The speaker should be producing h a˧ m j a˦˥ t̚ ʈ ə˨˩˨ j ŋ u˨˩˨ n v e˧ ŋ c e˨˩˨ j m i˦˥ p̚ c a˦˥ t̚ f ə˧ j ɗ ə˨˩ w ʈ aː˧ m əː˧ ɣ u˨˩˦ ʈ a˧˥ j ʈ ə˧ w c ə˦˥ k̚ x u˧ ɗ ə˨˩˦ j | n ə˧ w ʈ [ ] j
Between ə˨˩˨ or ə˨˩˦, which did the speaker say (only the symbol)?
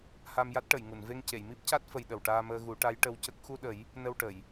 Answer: ə˨˩˨